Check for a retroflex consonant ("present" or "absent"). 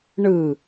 present